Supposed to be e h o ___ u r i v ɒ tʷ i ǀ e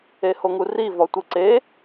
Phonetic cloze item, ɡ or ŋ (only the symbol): ŋ